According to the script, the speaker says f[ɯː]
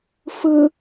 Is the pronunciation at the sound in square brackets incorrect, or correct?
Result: incorrect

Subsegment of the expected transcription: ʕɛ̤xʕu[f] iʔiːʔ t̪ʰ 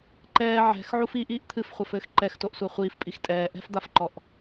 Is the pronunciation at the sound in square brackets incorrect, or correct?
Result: correct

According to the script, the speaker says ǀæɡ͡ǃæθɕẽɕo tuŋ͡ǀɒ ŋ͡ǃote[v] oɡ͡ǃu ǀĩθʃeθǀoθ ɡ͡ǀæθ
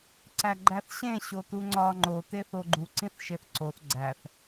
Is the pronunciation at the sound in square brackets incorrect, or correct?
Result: incorrect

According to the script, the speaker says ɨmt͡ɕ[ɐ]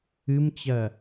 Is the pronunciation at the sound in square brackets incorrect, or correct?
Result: correct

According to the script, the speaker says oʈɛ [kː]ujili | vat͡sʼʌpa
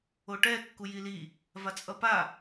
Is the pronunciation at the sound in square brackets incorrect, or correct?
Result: correct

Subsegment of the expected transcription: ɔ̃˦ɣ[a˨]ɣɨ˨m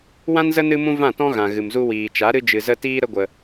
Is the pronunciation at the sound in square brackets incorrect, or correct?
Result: incorrect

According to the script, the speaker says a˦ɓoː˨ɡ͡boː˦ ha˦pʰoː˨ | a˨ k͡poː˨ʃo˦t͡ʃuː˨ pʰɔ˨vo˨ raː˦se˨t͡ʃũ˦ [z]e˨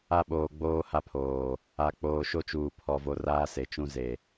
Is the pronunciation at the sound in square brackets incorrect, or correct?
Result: correct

